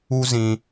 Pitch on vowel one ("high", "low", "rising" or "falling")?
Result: high